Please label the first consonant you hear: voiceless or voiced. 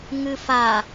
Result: voiced